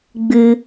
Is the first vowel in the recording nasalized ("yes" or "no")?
no